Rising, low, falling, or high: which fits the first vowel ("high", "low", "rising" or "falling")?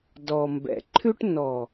low